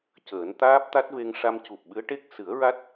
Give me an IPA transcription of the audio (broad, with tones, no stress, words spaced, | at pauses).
cəː˨˩˦nt̪aː˦˥p̚t̪a˦˥t̚ve˧ŋ ʂa˧mcu˨˩p̚ɓɨ˧˥ə̯ʈe˦˥k̚ sɨ˨˩˦ə̯ɹa˦˥t̚